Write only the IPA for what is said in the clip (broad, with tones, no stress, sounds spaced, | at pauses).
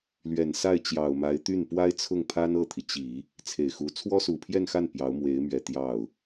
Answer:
l ɥ ɛ˨˩ n s a˥˩ ɪ̯ t͡ɕ j ɑ˨˩ ʊ̯ m a˧˥ ɪ̯ t̪ y˥˩ n p w a˥ ɪ̯ t͡sʰ ʊ˥˩ ŋ pʰ a˥ n ɤ˥˩ t̪ʰ i˩ t͡ɕ i˨˩˦ | t͡sʰ e˨˩ ɪ̯ x u˧˥ t͡sʰ w ɔ˥ s u˨˩ pʰ j ɛ˥˧ n x a˥˩ n p j ɑ˧˥ ʊ̯ m w e˧˥ ɪ̯ m ɥ ɛ˨˩ t̪ j ɑ˥˩ ʊ̯